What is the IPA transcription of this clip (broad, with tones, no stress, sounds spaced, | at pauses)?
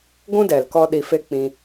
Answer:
ɡʷ ũ˦ d ɛ˨ l k ɔ˧ ɗ i˧ f e˦ k͡p ĩ˧